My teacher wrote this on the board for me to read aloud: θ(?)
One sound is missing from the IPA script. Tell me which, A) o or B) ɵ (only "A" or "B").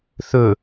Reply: B